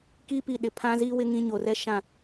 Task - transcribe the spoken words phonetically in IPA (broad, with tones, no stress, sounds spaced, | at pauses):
k i˦ p i˨ ɗ ɪ˨ pʰ ã˦ z i˦ w ɪ˦ ŋ ĩ˦ ɲ o˨ r ɛ˦ ʃ ã˦˨